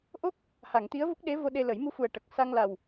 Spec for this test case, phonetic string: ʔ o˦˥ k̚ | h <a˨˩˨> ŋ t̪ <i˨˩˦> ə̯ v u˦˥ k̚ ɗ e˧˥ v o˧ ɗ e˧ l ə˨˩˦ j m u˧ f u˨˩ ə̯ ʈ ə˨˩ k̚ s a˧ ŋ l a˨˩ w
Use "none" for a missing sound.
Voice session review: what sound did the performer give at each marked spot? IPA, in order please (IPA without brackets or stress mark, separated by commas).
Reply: a˨˩˨, i˧˥